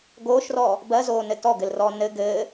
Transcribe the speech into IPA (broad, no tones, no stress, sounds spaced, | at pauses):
ɡ oː ʃ r ɔː | b ɜ z oː n ɘ t ɔ ɡ ɘ l r ɔː n ɘ ɡ ɘː